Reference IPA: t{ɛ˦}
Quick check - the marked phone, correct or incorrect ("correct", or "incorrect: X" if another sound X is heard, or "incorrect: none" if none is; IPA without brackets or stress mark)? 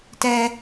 correct